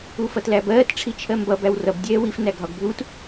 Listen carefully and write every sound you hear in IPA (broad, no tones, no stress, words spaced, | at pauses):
ufʌtlæbɜːt ʈ͡ʂʰit͡ʃʰɜmbʌ bæwrʌb dʲɛːwif næɡʱɒɡbʱut